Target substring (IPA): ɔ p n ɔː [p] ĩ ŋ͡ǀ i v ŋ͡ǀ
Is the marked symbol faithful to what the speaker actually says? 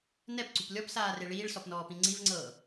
yes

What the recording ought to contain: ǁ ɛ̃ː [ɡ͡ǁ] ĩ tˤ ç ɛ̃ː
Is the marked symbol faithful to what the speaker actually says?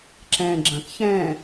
yes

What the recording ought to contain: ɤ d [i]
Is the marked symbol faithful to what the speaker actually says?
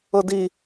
yes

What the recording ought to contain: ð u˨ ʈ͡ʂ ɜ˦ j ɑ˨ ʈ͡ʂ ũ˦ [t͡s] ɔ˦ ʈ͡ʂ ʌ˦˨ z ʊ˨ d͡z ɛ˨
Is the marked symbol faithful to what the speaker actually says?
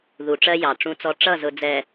yes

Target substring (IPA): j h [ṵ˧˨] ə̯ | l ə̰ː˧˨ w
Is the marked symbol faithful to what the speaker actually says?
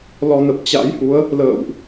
no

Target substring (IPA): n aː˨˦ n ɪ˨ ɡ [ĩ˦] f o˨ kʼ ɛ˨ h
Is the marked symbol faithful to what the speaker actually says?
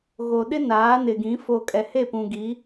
no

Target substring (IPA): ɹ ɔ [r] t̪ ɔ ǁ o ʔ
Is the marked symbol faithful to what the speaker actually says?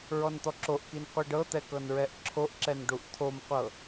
no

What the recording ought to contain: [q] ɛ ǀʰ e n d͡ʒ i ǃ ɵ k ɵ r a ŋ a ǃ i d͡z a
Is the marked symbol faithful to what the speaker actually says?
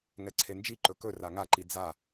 no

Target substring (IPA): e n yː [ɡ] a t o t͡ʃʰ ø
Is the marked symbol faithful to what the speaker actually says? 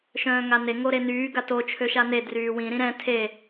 yes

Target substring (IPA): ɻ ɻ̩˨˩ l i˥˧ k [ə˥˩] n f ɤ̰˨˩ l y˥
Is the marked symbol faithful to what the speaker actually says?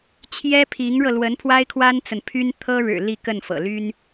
yes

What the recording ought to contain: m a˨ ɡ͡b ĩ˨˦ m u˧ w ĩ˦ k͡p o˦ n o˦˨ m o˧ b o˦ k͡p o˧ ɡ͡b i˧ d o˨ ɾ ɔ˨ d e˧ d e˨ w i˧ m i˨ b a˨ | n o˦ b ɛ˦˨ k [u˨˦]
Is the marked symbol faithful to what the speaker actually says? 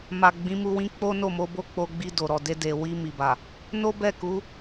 yes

